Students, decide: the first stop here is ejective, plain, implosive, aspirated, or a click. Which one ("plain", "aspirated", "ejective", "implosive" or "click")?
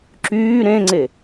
click